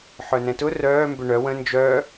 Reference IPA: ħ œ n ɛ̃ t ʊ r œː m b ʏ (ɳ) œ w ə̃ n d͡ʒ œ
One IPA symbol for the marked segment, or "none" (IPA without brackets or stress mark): ɳ